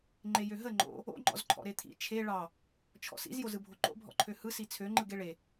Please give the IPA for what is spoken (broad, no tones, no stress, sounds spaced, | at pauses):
ŋ͡ǃ e j ø ɦ ə ŋ͡ǃ o̰ | o̰ ŋ͡ǃ ɔ̰ z ǃʰ ɔ̰ ɾ e t̪ʰ ḭ t͡ʃʰ e ɭ ɑ | t͡ʃʰ ɔ̰ s ḭ z j o z ɯ bʱ o ǃ o̰ bʱ ɔ̰ ǃʰ ø h ɯ s i t͡sʰ ø ŋ͡ǃ ɯ ɡ e ɭ e